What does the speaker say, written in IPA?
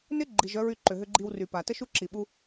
n ɪ˥ ɡ͡ǃ i˩ ʒ œ˥ ɹ y˧ ǃ ʏ˩ ɦ ʏ˧ ɡ͡ǃ i˧ w r y˩ p a˩ t ə˥ ʃ u˥ ǁ i˩ ɓ u˧

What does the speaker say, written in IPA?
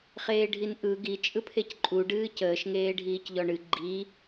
χ eː ɖʱ i n ʔ ɯ ɡ i t͡ʃʼ ɯ pʰ e c ǃʼ u ɖ ɨː c əː ʃ ŋ eː ɖʱ iː c ʎ ɔ ɳ ɨ ɡ͡ǃ i

